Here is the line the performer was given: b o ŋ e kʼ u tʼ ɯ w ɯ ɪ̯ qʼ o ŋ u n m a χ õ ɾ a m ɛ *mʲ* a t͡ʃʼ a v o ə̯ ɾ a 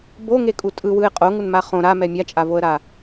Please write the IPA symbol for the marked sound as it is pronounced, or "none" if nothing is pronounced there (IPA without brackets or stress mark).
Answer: mʲ